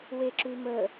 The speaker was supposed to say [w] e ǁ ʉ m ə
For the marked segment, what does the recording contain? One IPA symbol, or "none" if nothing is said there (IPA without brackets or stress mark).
w